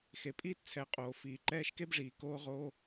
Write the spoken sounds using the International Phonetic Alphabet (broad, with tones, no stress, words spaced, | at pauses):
xe˨pʼiː˦tt͡sʰɛ˨˦ qʼoː˨fiː˨ ǃɛː˧ʃke˦bʐiː˨ koː˧ʁoː˧